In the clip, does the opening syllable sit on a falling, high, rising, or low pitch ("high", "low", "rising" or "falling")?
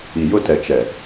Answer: low